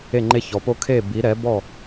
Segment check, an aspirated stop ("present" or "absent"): present